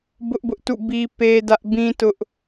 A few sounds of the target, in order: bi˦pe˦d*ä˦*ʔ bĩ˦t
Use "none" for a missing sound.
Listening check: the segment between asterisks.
ä˦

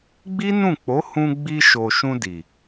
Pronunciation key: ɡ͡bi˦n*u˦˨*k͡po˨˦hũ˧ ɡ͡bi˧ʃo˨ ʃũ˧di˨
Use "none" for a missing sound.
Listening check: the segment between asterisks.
ũ˦˨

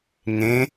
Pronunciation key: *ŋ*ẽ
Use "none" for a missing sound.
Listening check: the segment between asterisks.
ŋ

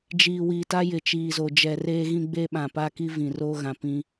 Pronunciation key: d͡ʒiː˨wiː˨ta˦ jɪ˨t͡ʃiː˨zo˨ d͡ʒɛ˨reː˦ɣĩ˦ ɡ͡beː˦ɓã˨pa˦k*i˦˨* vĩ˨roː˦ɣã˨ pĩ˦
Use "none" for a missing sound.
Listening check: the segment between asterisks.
i˦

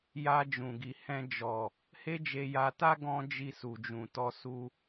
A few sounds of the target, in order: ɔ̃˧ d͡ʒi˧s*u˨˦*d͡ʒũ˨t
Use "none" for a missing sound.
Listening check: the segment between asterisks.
u˨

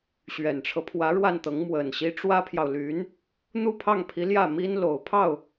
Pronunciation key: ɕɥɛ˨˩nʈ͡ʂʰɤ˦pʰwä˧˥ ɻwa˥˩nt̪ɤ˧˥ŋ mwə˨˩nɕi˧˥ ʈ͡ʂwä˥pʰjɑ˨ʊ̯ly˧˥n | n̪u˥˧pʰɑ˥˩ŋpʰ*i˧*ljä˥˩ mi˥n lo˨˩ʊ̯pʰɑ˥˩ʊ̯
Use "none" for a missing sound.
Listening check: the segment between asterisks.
i˧˥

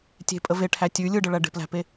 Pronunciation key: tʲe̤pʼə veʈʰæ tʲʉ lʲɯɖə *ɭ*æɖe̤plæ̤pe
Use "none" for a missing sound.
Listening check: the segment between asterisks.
ɭ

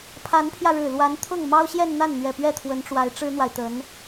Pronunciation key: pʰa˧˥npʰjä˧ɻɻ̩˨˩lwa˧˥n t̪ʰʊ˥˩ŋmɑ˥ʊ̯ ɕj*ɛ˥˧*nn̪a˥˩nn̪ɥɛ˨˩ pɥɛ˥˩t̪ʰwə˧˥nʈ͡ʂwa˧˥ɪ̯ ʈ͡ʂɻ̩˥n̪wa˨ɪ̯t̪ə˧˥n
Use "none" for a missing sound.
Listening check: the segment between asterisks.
ɛ˥˧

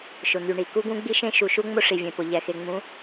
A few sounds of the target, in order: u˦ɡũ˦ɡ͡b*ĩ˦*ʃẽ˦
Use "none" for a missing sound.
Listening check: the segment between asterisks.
i˦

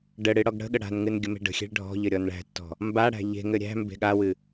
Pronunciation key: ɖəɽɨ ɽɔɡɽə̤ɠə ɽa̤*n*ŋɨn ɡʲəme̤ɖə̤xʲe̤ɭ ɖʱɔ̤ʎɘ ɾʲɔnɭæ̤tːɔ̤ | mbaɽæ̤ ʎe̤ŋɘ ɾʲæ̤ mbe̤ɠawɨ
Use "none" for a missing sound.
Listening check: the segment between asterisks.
n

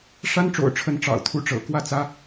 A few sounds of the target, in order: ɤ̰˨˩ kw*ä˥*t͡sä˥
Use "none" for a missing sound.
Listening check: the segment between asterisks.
ä˥˩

